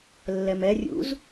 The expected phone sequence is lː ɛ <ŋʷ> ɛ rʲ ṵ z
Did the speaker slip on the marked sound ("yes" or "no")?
yes